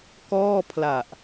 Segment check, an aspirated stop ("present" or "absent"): present